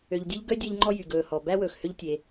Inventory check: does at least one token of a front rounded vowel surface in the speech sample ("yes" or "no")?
yes